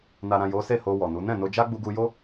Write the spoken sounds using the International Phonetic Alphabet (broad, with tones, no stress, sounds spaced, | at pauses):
n a˨ ɾ ã˨ j o˨˦ s e˦˨ h o˧ w ɔ˨ n u˨˦ n ɛ̃˦˨ n o˧ d͡ʒ a˦ ɡ͡b u˧ ɡ u˧ j o˦